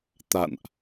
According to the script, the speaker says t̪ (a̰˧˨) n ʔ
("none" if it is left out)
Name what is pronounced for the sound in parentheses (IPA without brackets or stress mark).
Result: a̰˧˨